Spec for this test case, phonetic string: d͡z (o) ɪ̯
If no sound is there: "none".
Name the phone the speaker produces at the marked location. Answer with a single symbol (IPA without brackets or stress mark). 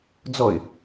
ɔ